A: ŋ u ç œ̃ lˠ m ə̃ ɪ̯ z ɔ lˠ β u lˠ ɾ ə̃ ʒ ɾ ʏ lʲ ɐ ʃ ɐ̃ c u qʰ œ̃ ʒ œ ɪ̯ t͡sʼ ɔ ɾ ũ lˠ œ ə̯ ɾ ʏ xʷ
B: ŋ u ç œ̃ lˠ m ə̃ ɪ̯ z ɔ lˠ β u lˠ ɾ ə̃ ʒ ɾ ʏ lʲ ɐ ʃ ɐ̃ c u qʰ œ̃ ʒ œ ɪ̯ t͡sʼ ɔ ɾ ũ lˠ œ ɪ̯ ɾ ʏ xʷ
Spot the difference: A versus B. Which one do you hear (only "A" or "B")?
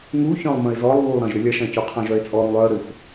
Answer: A